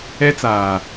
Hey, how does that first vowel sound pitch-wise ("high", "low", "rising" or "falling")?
high